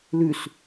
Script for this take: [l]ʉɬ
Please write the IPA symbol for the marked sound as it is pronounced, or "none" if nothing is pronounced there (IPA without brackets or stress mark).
l